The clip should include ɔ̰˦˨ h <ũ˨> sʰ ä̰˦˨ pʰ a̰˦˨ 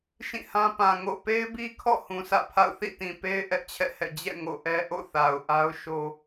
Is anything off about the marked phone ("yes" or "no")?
no